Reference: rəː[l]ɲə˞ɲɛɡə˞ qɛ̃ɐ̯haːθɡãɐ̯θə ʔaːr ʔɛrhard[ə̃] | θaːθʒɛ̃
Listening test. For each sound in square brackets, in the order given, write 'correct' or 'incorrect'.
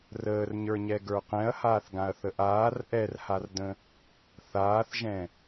incorrect, correct

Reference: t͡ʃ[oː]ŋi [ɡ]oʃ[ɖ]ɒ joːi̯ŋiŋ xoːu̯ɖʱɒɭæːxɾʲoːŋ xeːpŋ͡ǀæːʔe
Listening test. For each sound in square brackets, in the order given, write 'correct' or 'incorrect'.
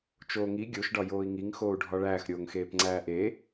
correct, incorrect, correct

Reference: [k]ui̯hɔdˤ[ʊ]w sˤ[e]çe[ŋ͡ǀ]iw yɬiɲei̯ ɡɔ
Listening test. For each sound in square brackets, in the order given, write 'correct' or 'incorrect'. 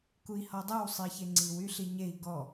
correct, incorrect, incorrect, correct

